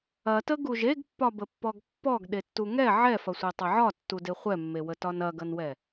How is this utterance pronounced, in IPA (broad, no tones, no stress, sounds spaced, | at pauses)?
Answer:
ɐ t ə ɡ u ʒ e ɡ pː ɒ b ə pː ɔ ɡ pː ɔ ɡ ɗ e tː u ŋ ɛ ʕ ɛ f ɐ sʷ e tˤ ə ʕ ɒ tː u d e χʷ ɛ mː e w ə t ɒ n ɐ ɡ ɐ n w ɛ